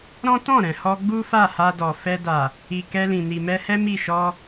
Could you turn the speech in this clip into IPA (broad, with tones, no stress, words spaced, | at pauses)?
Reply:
ɾɔ̃˦tɔ̃˦˨ ɾɛ̃˨hɔ˧ɡ͡bu˦ fa˦˨ha˧dɔ˨ fɛ˧da˨ | i˨kɛ˧ lĩ˨ni˨mɛ˧hɛ˦ mi˦˨ʃɔ˧